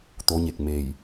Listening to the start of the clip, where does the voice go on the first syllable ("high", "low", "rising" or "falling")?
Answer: rising